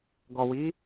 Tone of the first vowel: low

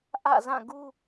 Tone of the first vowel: falling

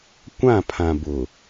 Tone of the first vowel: falling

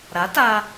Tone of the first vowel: rising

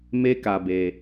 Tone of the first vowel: high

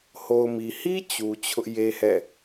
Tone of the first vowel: low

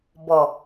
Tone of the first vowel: low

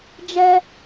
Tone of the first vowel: high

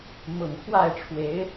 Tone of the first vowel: low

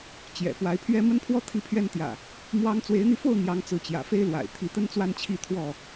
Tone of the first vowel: low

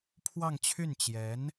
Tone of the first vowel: falling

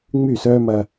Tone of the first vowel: falling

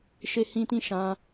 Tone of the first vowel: high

